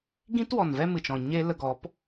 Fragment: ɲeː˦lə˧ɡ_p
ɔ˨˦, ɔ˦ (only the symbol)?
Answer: ɔ˨˦